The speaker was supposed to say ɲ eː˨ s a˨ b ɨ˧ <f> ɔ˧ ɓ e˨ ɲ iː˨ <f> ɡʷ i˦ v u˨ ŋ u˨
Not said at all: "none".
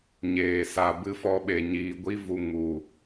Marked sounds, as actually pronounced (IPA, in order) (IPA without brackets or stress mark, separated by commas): f, none